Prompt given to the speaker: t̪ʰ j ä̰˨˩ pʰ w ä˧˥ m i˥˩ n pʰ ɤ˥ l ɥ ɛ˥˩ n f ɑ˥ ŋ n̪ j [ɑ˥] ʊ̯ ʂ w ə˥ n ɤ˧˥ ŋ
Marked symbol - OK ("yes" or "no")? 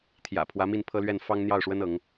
no